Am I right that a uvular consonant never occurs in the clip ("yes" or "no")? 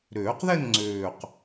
no